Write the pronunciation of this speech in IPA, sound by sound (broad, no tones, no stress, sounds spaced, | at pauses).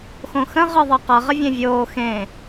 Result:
x õ x ə̃ ʁ ɯ ðˤ ʌ q ʌ ʁ ə vʲ ẽ vʲ oː x ẽ